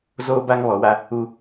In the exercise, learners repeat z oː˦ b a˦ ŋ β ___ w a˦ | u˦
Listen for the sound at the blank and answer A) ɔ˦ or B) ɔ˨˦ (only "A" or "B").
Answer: B